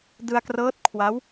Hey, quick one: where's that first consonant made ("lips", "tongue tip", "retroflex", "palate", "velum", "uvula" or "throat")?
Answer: tongue tip